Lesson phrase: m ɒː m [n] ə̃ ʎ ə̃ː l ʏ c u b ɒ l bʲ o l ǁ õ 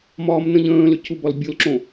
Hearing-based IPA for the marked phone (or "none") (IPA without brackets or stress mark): n